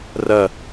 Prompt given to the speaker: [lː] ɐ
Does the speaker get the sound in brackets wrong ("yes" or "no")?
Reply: yes